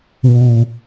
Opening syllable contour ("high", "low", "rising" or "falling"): low